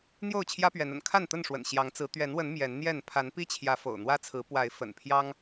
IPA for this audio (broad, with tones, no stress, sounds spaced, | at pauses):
n̪ j o˥˨ ʊ̯ t͡ɕʰ j ä˦ p ɥ ɛ˨˦ n ə̰˨˩ n kʰ a˥˨ n t̪ ə˥˨ n ʂ w ə̰˨˩ n ɕ j ɑ˨˦ ŋ t͡s ɹ̩˨˦ t̪ ɥ ɛ˨˦ n w ə˨˦ n m j ɛ˨˦ n n̪ j ɛ˥˨ n pʰ a˨˦ n p i˦ t͡ɕʰ j ä˨˦ f o̰˨˩ ʊ̯ n̪ w ä˦ t͡sʰ ɹ̩˨˦ p w a˨˦ ɪ̯ f ə̰˨˩ n pʰ j ɑ˦ ŋ